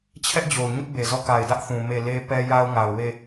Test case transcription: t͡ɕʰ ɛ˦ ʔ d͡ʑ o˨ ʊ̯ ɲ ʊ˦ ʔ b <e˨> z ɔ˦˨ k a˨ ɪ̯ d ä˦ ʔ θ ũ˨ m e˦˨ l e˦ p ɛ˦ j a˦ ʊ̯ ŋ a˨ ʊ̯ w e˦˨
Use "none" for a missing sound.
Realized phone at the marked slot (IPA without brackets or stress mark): e˨